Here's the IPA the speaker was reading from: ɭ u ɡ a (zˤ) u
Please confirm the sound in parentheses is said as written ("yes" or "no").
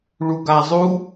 yes